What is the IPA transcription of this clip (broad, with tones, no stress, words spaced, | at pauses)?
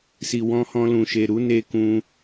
si˨wɔ̃˧hɔ̃˧lũ˨ ʃe˨ɾu˨˦ne˧kũ˧